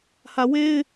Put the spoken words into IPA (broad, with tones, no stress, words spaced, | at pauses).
hä˨we˦ɪ̯